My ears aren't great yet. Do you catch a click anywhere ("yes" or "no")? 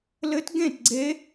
yes